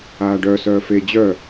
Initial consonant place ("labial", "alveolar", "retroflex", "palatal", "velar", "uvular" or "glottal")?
retroflex